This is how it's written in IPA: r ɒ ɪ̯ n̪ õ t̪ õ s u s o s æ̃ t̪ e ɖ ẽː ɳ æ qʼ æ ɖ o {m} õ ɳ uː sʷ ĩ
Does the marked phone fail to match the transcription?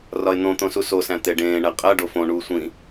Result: yes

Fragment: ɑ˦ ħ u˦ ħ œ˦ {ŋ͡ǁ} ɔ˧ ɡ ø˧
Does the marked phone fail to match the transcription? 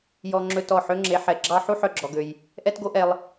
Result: yes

